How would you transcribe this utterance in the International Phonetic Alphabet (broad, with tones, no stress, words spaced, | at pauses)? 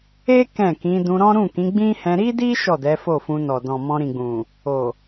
e˦ kɛ̃˦˨kĩ˨˦ dũ˧ɾɔ̃˦ ɾũ˦˨kĩ˨˦ɡ͡bĩ˦hɛ̃˧ ɾi˦di˦ ʃɔ˦˨dɛ˨˦ fo˦˨fũ˧ nɔ˨dɔ̃˨ mɔ̃˧ɾĩ˨ɡ͡bũ˨ | o˨